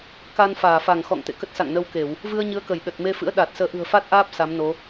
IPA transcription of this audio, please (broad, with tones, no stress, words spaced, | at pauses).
ka˧nfaː˧˩fa˧˩ŋ xɔ̰˧˨ŋt̪ḛ˧˨ kə˦˥t̚sa̰˧˨ŋnə˧wke˧˩˨w | vɨ˧ə̯ɲɨ˨˦ə̯kə˧˩jɗə˨˩t̚ me˧fɨ̰˧˥ə̯ ɗa˨˩t̚səː˨˦ ʔɨ̤˨˩ə̯fa˦˥t̚ʔaː˦˥p̚ sa˨˦mno˨˦